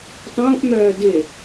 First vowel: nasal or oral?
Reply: nasal